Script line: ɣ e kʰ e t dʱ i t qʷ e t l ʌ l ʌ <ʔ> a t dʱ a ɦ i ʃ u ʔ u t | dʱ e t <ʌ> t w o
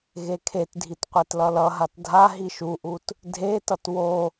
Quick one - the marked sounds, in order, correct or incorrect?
incorrect: ɦ, correct

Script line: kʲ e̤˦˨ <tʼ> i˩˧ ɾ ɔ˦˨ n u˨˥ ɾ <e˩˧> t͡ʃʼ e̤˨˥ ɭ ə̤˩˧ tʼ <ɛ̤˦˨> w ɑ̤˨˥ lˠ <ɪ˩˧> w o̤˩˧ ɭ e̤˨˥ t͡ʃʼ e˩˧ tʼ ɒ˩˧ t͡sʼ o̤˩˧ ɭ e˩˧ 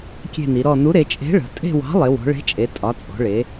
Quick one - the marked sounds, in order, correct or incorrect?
incorrect: n, correct, incorrect: e̤˦˨, correct

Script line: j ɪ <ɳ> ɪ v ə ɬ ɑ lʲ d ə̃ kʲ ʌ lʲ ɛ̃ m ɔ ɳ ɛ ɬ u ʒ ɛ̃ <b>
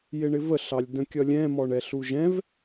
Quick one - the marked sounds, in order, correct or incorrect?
correct, incorrect: v

